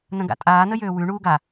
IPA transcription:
n ə̃ ɡ a̰ tʼ aː n ə j øː w ʉ ɳ uː ɡ a

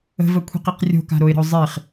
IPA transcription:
ə̤ v ə kʷʰ i̤ q i q rʲ o̤ k a̤ ɾ o ɪ̯ ɾ ə̤ ʊ̯ zˤ i χ

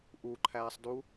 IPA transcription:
ʔ u ǃʰ æː sˤ d u

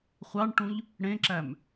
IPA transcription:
χʷ ɑ ɳ ʈ ũ ʎ | ɽ ẽ ǁ æ m

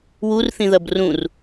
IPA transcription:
w u r θ ĩ ð ɐ b r ũ r

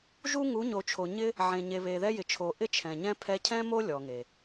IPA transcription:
ʒ u˦ ŋ u˨˦ ɲ o˨ t͡ʃʰ o˨ ɲ ɪ˦ | ʕ ẽ˨ ɲ e˨ β e˨ ð ɛ˦ j ɪ˨ t͡ʃʰ o˨ ʔ ɪ˦ t͡ʃʰ ɛ̃˨ ɲ ɛ̃˦ pʰ ɛ˧ cʰ ɛ̃˦ m o˦ lʲ ɔ˨ ŋ e˨

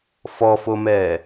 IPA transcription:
f ɔ f o m ɛː

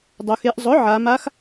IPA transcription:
dˤ o˩˧ x e˩˥ ʔ zˤ ʊ˩˥ ʕ a˩˧ m a˧˥ x

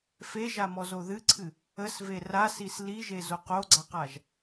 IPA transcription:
f e ʒ a m ɔ z o ð ɨ ǀʰ ɨ | ə s v e r a s i s l i ʒ e z o q o ɡ͡ǀ a q a ʒ

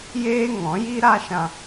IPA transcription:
j eː˦ ŋ ɔ̃˨˦ j i˦ ɾ a˦ ʃ ã˧

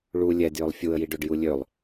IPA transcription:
ɭ u lʲ ɛ d j ø lˠ fʲ u ə̯ j i ɖ ø ɖ j u lʲ ø lˠ

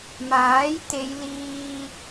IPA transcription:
m aː˨˥ j t̪ e˨˧ j l iː˧

